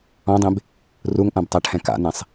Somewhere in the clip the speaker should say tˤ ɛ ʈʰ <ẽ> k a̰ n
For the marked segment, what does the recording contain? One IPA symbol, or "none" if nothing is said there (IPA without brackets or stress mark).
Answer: ɛ̃